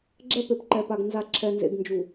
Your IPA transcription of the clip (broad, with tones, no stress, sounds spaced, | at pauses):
ɡ͡ǁ ɛ˦ p e˨ p ǃ ɛ˨ p a˨ ɡ n z a˨ ǁʰ ɛ˨ n z ḛ˨ ɡ n d͡ʒ u˨